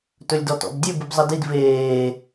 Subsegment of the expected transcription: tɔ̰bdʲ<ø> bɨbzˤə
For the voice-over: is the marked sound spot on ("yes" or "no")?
yes